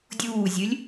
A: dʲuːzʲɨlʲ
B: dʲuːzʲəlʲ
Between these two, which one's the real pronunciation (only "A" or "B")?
A